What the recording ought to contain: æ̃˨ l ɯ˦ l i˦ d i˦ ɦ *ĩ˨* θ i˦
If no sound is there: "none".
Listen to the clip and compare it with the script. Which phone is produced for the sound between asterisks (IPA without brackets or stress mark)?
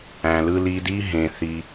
ẽ˨